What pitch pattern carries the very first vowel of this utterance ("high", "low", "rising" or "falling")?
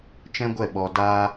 high